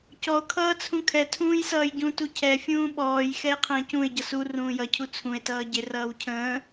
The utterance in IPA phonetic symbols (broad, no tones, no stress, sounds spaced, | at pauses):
c ɔ o̯ kʰ ʌː t͡sʰ ũ kʰ ɛ tʰ ũː j s ʌː j ɟ ũ t u cʰ ɛ fʲ ũː ɓ ɔː j x ɛ e̯ qʰ ə̃ː c ũ e̯ ɟ ʌ s u r ũː j ʌ cʰ u t͡sʰ ũ e̯ t ʌː ɟ ɪ r ʌː w cʰ ə̃ː